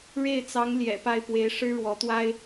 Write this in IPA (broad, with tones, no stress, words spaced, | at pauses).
ɻe˥˩ɪ̯t͡sɑ˧˥ŋ ljɛ̰˨˩pa˥˩ɪ̯pwe˧˥ɪ̯ ʂɻ̩˥ɻwɔ˧˥t̪wa˥ɪ̯